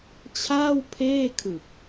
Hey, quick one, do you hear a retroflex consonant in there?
no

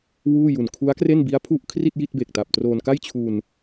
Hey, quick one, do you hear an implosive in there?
no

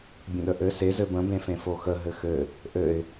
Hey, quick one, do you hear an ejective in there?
no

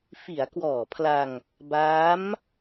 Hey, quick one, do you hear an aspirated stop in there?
yes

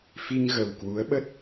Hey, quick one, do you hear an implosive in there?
yes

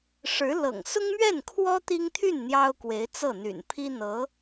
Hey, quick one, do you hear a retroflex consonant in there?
yes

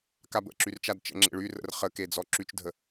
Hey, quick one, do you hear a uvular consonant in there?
yes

